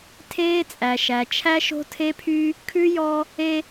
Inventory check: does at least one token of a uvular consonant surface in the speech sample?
no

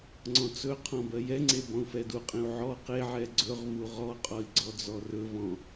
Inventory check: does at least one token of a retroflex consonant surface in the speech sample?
no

